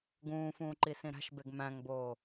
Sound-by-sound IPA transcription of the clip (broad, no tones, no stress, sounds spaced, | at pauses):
ɡ ũː f ũː ǃ i s ĩ ɾ æ̤ ʃ b e ɡ m æ̃ ŋ b oː